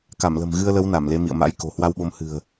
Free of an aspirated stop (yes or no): yes